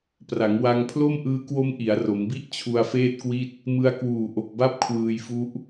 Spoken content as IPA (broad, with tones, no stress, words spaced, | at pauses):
pra˩˦ŋwa˧ŋpʰlo˥˩m ʔɯː˦˥kwo˦˥m ʔi˩˦a̯ro˩˦mbi˥˩ʔ t͡ɕʰu˧a̯feː˥˩t̚kwi˥˩t̚ | mɯ˧a̯kwuː˨˩ʔo˨˩k̚ba˥˩p̚ kʰwɯː˧jfu˦˥ʔ